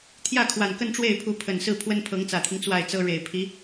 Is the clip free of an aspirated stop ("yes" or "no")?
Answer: no